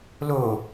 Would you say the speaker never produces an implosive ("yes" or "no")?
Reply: yes